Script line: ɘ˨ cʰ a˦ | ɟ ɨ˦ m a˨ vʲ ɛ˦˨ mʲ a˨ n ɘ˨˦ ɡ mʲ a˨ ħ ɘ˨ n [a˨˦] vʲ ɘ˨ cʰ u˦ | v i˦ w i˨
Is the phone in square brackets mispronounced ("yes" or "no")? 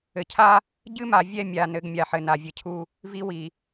yes